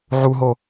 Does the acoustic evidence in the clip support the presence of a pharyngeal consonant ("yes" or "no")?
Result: yes